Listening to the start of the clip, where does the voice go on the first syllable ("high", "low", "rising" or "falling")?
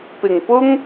low